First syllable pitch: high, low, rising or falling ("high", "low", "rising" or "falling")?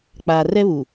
low